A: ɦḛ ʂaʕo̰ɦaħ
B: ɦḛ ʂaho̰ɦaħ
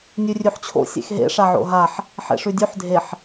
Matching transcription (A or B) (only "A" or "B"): A